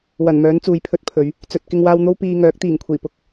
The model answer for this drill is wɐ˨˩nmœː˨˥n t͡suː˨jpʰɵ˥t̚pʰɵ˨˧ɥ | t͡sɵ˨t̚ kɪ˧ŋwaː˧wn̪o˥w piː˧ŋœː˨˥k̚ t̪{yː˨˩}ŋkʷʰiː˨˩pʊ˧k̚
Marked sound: incorrect: iː˨˩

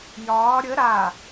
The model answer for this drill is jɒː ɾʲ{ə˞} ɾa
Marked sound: incorrect: ə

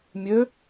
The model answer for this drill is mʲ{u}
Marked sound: incorrect: ø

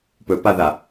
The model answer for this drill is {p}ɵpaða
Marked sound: correct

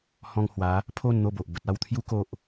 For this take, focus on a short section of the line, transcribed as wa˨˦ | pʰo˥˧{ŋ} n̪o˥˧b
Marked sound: incorrect: n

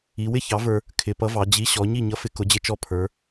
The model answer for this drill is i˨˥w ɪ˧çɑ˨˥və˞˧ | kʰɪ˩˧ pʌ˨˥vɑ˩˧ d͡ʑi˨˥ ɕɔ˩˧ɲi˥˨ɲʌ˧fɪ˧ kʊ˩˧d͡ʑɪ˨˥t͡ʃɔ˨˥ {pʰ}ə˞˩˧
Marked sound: correct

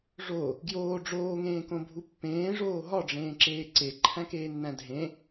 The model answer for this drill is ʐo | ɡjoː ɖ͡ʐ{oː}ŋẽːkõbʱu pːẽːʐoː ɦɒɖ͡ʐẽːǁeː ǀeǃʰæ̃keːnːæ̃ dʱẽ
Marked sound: correct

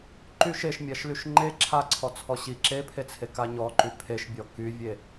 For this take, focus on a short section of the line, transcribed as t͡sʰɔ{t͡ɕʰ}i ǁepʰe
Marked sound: incorrect: ɕ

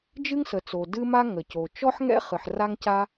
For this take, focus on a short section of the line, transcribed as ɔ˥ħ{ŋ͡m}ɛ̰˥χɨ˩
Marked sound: incorrect: ŋ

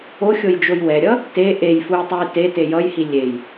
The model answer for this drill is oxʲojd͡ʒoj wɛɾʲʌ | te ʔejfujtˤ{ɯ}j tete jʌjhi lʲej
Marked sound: incorrect: u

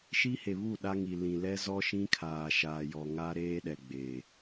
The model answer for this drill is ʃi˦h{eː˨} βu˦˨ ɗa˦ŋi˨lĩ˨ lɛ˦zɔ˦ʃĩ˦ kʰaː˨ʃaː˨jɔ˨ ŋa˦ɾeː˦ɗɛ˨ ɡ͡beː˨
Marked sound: incorrect: e˨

